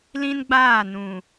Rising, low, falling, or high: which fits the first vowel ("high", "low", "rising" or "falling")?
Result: high